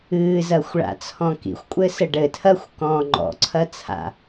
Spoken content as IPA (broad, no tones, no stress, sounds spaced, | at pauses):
ɨː z ɐ xʷ ɭ a̰ t͡sʰ ɔ̃ k ḭ xʷ kʷʼ ɘ s ɘ ɖ ɘ tʰ ɐː xʷ k ɔ̃ː ŋ͡ǃ ɔ̰ ǀʰ ɐ t͡sʰ a̰